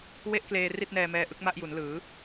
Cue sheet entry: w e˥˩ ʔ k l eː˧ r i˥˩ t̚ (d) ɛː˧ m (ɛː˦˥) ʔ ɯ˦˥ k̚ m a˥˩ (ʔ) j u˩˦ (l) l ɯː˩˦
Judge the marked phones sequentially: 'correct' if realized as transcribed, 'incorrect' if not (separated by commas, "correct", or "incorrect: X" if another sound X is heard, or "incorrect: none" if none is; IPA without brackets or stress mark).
incorrect: n, correct, correct, incorrect: n